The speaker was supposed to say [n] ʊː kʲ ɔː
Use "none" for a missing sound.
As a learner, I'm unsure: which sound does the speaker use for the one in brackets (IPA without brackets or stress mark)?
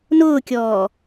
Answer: n